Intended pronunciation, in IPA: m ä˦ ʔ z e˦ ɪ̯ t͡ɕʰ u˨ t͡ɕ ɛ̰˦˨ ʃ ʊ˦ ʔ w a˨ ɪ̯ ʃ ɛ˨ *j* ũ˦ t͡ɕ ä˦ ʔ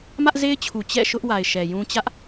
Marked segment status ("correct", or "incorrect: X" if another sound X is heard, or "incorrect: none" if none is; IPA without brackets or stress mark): correct